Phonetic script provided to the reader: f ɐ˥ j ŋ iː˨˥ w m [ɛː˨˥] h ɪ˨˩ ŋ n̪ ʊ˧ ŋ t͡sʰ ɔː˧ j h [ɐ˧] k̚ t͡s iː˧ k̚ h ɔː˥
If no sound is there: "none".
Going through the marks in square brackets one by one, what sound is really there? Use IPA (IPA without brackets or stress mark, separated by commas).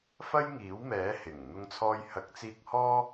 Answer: ɛː˨˥, ɐ˨˥